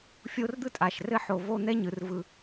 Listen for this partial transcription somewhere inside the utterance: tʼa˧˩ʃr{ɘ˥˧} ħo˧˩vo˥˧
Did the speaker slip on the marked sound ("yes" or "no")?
no